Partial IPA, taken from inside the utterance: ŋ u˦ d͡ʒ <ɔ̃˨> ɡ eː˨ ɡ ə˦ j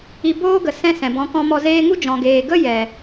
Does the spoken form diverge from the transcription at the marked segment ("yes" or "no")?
no